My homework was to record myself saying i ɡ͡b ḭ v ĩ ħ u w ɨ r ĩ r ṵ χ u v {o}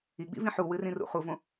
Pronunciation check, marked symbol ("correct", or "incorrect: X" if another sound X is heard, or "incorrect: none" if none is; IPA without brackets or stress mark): incorrect: õ